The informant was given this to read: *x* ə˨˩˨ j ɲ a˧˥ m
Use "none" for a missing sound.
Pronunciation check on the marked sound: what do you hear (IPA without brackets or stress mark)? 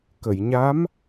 k